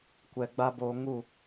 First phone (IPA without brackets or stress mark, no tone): kʷ